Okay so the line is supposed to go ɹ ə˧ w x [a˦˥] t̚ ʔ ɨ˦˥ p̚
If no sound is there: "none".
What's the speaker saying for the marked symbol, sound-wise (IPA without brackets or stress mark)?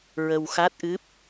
a˦˥